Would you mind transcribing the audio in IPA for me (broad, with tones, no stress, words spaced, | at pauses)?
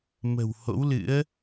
mə̤˨˩who̰˧˥wlɨ̰˧˥ə̯